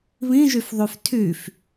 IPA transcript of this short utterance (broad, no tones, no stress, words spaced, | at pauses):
βĩʒyf ðˤyftʰyf